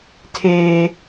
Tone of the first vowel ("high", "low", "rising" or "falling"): high